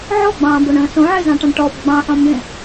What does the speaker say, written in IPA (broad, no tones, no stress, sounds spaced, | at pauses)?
ʕ ɔ ɡ͡b ɑ̃ː b o ɳ ə̃ː s õ ʕ e z ɑ̃ ʈ ɑ̃ ɳ ʈ ɔ b ɡ͡b ɑ̃ ħ ɔ̃ m b ẽ